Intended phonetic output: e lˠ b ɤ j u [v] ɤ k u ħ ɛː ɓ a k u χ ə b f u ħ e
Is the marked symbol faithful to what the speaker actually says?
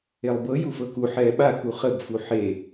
no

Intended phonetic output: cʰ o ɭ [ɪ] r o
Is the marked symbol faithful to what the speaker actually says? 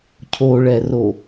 no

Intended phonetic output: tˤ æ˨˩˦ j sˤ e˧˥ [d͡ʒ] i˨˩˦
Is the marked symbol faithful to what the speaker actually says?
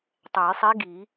no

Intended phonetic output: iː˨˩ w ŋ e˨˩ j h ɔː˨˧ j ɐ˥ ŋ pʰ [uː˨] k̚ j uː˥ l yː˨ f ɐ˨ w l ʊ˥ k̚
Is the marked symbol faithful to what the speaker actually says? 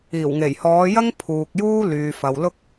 yes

